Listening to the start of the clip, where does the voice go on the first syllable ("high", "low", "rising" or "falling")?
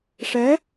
rising